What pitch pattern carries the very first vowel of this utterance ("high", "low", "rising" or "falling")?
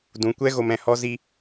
low